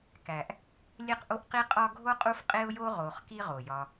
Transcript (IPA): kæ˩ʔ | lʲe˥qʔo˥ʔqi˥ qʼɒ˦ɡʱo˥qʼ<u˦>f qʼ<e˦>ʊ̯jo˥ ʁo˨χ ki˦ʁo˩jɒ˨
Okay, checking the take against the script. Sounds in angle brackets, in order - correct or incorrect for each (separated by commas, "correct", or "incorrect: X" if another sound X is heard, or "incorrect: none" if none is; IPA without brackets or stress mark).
correct, incorrect: e˥